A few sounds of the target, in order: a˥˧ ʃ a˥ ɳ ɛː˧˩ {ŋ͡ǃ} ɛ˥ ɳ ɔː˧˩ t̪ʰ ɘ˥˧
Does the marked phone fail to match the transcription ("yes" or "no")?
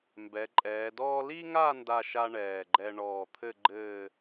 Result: yes